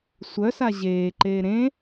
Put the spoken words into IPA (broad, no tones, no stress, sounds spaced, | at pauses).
sʷ œ s a ʑ eː ǃ eː ɾ ẽ